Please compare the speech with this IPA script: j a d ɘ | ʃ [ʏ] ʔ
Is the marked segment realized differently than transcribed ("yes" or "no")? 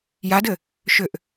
no